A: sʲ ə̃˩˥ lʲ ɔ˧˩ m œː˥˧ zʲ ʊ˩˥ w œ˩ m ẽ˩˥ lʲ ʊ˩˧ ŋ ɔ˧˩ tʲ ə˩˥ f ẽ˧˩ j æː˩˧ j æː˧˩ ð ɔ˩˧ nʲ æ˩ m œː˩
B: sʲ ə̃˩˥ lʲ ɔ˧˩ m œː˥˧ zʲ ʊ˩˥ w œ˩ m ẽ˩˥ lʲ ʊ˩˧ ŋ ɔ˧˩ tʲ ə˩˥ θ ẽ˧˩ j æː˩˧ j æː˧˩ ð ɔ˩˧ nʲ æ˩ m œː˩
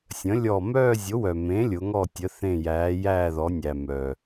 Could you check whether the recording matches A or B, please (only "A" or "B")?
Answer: B